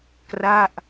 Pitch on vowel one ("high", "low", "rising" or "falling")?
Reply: falling